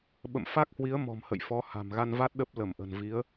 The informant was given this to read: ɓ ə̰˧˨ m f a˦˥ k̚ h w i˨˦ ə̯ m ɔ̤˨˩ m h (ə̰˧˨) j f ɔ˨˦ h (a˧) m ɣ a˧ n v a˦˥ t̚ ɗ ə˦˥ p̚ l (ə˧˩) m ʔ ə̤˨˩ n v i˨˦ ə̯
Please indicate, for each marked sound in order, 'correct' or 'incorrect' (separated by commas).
correct, incorrect, correct